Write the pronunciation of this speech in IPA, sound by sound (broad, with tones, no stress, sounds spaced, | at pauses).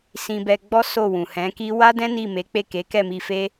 s ĩ˧ b ɛ˧ ɡ͡b ɔ˦ s o˦˨ w ũ˨ h ɛ̃˨˦ k i˦ w a˦ d ɛ̃˦ n i˦˨ m e˨˦ k͡p e˦˨ k e˨˦ k ɛ˦˨ m i˧ f e˦